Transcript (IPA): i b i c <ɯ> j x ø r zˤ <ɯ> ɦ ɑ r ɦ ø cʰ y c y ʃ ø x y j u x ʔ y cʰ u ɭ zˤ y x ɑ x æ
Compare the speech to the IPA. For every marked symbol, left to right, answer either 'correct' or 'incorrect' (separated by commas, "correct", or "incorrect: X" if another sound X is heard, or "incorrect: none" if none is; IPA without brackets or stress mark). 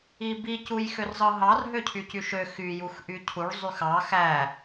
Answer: incorrect: u, correct